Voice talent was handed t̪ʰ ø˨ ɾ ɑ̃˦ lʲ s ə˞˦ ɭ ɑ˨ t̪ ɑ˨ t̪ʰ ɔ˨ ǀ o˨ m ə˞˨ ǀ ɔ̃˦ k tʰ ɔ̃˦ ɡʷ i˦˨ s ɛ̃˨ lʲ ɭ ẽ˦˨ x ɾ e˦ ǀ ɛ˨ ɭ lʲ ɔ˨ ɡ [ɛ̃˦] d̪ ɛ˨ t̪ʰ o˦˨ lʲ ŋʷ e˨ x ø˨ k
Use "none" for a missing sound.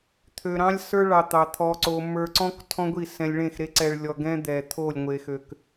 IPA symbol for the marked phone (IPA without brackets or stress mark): ɛ̃˦